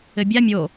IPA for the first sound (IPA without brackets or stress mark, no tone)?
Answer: ɘ